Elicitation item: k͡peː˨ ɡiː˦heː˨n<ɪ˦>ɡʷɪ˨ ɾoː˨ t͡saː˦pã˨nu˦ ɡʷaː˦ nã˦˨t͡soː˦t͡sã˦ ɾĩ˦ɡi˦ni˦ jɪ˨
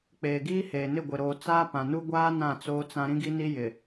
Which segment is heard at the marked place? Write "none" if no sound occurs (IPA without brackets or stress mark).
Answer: ɪ˦˨